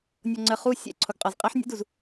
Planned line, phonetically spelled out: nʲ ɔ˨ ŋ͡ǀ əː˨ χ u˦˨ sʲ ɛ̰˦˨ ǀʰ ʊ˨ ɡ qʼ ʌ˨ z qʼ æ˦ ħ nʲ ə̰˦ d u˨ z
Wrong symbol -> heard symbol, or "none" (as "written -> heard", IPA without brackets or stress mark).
none